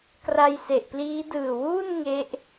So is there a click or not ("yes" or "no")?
no